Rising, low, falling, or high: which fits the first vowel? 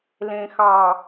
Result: low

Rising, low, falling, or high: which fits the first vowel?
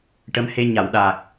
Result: rising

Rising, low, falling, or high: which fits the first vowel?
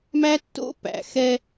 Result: high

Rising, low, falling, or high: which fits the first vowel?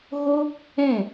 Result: high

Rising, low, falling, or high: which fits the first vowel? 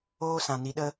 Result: high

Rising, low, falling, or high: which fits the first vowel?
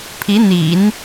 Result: rising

